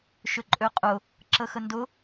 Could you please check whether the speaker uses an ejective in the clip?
yes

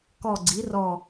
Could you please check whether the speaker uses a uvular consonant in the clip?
no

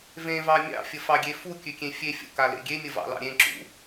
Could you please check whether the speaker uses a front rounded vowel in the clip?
no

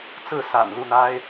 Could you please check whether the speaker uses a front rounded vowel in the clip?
no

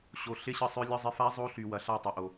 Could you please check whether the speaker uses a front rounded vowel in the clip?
yes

